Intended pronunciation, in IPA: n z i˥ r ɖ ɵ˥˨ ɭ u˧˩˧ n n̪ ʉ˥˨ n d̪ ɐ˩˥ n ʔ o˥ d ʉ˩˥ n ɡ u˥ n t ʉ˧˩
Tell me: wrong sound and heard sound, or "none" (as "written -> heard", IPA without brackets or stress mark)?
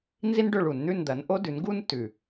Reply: r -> n